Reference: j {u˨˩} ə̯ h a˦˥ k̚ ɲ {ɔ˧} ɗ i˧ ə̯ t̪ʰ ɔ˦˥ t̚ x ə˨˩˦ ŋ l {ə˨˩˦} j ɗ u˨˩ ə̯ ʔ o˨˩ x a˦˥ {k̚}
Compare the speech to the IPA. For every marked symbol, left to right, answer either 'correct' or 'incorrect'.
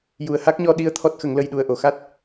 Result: correct, correct, incorrect: ə˧, incorrect: t̚

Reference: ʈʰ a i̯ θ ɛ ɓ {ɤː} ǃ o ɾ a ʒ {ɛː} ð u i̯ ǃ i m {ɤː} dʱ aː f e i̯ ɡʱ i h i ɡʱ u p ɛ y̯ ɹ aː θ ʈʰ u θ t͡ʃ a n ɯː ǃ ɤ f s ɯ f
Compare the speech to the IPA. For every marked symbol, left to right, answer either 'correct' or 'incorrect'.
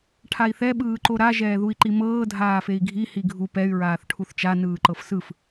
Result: incorrect: ɯː, correct, correct

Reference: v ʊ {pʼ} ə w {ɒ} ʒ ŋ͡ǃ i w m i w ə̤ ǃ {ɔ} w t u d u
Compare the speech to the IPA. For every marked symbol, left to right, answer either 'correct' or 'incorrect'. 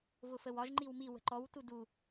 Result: incorrect: f, correct, correct

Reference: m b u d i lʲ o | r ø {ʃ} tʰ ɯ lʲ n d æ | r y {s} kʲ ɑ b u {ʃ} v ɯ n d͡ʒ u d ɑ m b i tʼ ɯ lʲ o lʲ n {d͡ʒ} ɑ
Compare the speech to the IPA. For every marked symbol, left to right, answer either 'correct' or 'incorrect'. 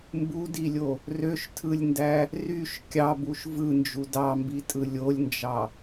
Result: correct, incorrect: ʃ, correct, correct

